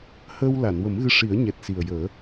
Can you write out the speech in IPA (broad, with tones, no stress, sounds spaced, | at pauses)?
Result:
h əː˧ w l a˨˩˨ n w ə˨˩˦ m ɣ ɨ˧ ʂ i˨˩˦ ə̯ ɲ ɛ˨˩ t̚ s i˨˩ ə̯ j əː˨˩˦